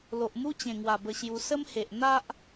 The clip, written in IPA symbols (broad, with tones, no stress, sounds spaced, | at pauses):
l o˨ ʔ m u˦ t͡ɕ ẽ˨˩ ŋ w a˨˩ b ə˧ ɕ j u˧ s ə˦ m h e˨ ʔ n̪ a˦ ʔ